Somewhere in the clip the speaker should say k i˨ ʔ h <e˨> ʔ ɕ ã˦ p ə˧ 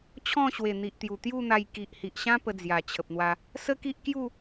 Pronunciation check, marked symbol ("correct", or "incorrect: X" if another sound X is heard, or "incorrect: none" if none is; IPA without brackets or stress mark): incorrect: i˨